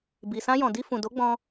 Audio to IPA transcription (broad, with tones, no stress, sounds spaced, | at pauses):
b i˨ s ã˧ j ɔ̃˨ d i˧ f ũ˨ d o˨˦ ɡ͡b ɔ̃˧